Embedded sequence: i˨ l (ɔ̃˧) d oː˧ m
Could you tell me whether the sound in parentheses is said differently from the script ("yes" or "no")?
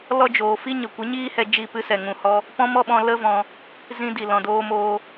yes